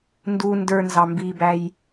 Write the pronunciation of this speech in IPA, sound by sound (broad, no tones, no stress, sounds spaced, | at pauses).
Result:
n d u n d ə˞ n z ɑ m b i b æ j